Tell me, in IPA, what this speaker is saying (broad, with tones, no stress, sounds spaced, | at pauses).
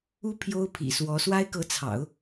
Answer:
u˥ pʰ j o˥ ʊ̯ pʰ ḭ˨˩ s w ɔ˧˥ s w a˥ ɪ̯ k ɤ˧˥ t͡sʰ ɑ̰˨˩˦ ʊ̯